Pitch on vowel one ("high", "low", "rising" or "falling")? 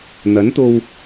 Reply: rising